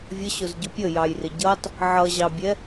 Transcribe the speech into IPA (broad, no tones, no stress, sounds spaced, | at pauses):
vʲ ə ɕ ʊ z ɟ ʊ pʲ ə j ɑ j r ɪ ɟ ʌ tˤ | ʕ ʌ ʑ ɑ bʲ ɛ